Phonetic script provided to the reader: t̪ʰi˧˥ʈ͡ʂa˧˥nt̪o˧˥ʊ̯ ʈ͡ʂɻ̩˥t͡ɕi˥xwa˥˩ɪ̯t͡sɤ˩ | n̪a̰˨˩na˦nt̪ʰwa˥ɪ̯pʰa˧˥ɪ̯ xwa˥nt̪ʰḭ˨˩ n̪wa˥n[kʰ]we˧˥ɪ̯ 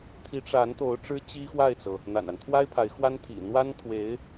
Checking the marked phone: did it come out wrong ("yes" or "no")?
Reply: yes